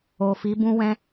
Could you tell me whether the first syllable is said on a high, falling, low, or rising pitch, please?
low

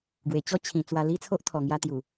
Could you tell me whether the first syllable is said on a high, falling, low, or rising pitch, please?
low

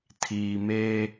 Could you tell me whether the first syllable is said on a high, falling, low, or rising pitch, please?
low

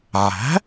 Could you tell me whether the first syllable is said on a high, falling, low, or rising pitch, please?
rising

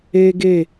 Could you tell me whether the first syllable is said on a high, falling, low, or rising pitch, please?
high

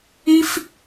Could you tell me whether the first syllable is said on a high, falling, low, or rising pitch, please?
high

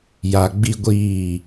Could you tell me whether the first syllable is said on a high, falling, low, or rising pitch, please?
low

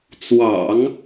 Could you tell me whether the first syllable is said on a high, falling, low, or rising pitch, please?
low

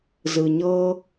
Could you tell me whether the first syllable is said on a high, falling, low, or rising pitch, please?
low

